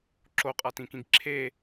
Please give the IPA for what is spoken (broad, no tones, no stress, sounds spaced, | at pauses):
ǁ o qʼ a t ĩ k ĩ ɡ ǁʰ e